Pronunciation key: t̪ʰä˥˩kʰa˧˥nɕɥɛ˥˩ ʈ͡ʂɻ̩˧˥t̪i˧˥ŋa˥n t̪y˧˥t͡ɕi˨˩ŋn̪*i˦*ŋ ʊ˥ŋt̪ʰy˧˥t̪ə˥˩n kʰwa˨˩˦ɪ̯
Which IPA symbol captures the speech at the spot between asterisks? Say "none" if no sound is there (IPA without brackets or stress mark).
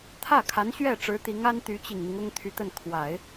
i˦